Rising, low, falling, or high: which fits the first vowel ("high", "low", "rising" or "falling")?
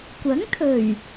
rising